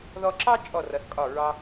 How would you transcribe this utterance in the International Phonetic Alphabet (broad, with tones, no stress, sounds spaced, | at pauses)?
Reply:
ð ɔ˧ ǁ ɑ˥ t͡ʃʼ ɔ˧˩ r ʌ˩˧ s kʼ ɒ˧˩ ɹ ɑ˧